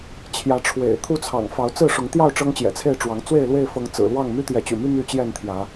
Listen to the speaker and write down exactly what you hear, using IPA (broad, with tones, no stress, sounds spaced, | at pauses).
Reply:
t͡ɕʰ j ä˨˦ ʈ͡ʂʰ w ḛ˨˩ ɪ̯ t̪ʰ u˦ t͡sʰ ɑ̰˨˩ ŋ f ɑ˨˦ ʊ̯ t͡s ɹ̩˥˨ ʂ ʊ˨˦ ŋ t̪ j ɑ˥˨ ʊ̯ ʈ͡ʂ ɤ˦ ŋ t͡ɕ j ɛ̰˨˩ t͡sʰ e˥˨ ɪ̯ ʈ͡ʂ w ɑ˨˦ ŋ t͡s w e˥˨ ɪ̯ l w e˥˨ ɪ̯ f ɤ˨˦ ŋ t͡s ɹ̩˨˩ l w ɑ˥˨ ŋ m y˦ t̪ j ɛ˨˦ t͡ɕ y̰˨˩ m y˦ m y˥˨ t͡ɕ j ɛ˥˨ n t̪ʰ j ä˨˦